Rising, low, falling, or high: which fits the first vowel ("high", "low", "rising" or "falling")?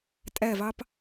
falling